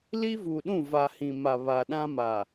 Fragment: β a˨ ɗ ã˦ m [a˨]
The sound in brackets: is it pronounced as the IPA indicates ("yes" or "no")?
yes